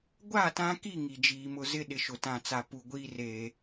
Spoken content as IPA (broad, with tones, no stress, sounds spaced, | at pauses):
ɡʷ a˦˨ t ã˦ k i˦˨ ŋ i˨ d͡ʒ iː˨ m ʊ˦ z ɪ˦ ɗ ɪ˨ ʃ ʊ˨ t ã˨ t͡s a˨ p u˨ ɡʷ iː˦ r eː˨